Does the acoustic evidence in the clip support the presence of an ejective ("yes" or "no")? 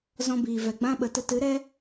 no